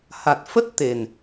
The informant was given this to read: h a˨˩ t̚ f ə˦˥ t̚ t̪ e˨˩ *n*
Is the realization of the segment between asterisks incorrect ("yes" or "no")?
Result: no